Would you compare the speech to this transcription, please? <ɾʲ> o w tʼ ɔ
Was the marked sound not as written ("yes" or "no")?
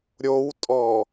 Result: no